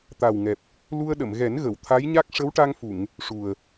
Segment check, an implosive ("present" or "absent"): present